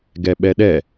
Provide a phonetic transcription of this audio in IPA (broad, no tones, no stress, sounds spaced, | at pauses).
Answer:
ɡ ɛ ɓ ɛ ɗ ɛ